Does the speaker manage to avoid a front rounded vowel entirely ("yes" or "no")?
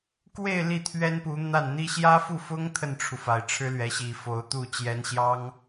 yes